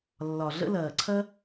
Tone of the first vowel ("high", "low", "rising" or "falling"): low